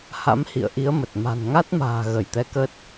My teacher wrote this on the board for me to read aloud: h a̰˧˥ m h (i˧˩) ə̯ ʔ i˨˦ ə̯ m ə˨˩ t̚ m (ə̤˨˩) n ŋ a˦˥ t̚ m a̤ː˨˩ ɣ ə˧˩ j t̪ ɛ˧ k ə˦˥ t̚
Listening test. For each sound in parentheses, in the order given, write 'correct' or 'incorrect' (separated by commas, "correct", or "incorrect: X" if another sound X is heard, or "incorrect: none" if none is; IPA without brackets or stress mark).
incorrect: ḭ˧˨, incorrect: a̤˨˩